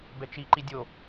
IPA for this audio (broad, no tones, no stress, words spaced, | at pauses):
bɛt͡ʃi ǃidʲo